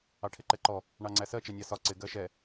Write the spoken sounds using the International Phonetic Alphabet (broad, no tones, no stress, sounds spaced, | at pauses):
ɑ ʈʰ ɪ ǃ ɛ ǃ ɔ | ɳ ɑ ŋ͡ǀ æ s ɜ t͡ʃ ɛ nʲ ɑ s ɒ ǀ ɪ ɡ ɜ ʃ ɛ